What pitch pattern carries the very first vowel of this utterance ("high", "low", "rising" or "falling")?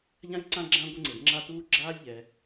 high